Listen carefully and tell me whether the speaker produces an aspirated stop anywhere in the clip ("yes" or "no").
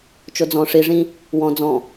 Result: no